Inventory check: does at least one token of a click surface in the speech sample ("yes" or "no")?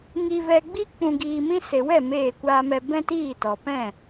no